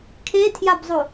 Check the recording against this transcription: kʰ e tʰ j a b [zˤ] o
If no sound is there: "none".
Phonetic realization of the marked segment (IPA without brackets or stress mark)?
zˤ